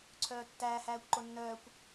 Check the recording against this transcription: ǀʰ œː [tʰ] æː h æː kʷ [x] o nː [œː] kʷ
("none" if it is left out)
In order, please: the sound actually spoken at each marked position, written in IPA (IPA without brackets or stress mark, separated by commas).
tː, ǃ, œː